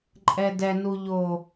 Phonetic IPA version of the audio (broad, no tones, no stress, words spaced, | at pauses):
ǃʼɛdɛnuʎoː